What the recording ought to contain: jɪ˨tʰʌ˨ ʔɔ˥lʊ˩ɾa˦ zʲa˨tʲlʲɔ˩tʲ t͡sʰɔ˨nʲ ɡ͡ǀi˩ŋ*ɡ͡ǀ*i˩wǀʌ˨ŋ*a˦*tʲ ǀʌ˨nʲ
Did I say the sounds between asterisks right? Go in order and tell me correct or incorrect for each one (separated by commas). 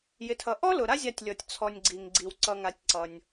correct, incorrect